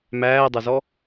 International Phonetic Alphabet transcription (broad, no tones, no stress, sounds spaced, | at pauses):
m æː dˤ ɐ z ɔ